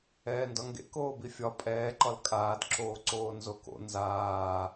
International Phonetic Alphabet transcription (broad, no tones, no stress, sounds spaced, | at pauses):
ɛː n d ɒ ŋ ɡ ḛ k oː b i fʲ ɒ pʼ ɛː ǃ ɒ l kʼ aː d ǁ oː ǀ oː n z o k o̰ n z aː